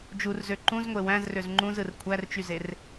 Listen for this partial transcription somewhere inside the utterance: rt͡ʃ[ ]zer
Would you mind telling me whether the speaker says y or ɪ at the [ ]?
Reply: y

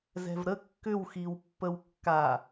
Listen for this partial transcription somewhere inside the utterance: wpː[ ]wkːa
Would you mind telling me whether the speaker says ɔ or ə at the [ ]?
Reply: ə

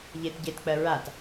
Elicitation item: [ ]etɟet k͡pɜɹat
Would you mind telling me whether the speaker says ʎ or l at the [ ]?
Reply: ʎ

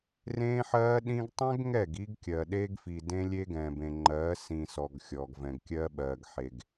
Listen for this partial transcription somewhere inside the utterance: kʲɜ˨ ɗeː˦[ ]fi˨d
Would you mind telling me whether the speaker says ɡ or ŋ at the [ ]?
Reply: ɡ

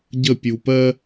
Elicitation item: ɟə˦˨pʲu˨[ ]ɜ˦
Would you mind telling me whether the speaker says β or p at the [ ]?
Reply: p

